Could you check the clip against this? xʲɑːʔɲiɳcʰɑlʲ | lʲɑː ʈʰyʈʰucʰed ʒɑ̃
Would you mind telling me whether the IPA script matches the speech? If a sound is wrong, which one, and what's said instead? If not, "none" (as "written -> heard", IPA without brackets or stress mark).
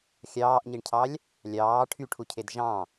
none